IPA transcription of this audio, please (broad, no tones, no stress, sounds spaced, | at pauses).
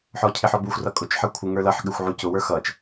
ħ ɔ cʰ ɪ ħ ɔ b u xʷ r ʌ kʼ ʊ t͡ʃ ħ ʌ kʷʰ ɪ ŋ ə˞ l ʌ ħ ɠ ɪ xʷ ʕ u c ʊ w ə˞ x ʌ t͡ʃ